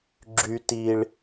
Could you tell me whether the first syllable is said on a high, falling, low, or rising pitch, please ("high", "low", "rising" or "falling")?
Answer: high